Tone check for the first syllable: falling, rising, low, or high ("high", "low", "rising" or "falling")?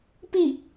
falling